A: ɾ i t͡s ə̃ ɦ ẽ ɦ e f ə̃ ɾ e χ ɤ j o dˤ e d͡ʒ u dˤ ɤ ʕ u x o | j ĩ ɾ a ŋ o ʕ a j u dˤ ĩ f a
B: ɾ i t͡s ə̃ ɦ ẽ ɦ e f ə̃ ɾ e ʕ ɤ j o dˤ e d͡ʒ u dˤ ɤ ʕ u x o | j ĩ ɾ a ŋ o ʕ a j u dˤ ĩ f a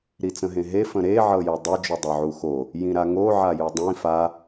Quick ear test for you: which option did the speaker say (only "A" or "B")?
B